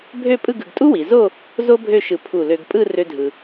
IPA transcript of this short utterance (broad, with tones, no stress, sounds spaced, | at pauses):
bʱ ø˥˧ pʼ ɯ˥˧ ɡ ɯ˧ ɡ tʼ u˥ w i˩˧ z o˥˧ | z o˥ bʱ ø˥˧ ʃ ɯ˧ pʰ u˧˩ l ø˧ ɡ pʼ ɯ˥˧ r ø˥ dʱ ɯ˧